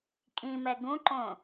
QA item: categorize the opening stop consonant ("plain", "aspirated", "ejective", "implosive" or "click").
ejective